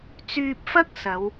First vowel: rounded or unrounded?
rounded